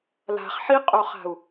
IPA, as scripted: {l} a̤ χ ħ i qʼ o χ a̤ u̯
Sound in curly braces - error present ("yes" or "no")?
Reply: no